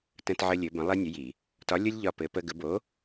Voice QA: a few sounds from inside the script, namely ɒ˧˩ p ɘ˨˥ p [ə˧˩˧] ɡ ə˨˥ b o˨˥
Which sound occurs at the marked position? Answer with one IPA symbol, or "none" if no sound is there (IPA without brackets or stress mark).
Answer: ə˦